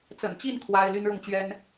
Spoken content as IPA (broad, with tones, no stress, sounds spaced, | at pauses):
t͡s ə̰˨˩ n t͡ɕ i˥˩ n kʰ w a˥ ɪ̯ l y˥ n ɻ ʊ˥˩ ŋ t͡ɕ ɥ ɛ˥ n